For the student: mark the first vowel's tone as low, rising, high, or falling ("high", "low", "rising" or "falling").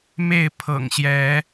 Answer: falling